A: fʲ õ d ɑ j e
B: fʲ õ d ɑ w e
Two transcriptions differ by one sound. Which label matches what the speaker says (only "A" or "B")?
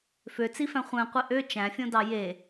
A